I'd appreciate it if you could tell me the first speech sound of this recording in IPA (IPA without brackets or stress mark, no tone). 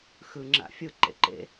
x